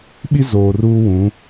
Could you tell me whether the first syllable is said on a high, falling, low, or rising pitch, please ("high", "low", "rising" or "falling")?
high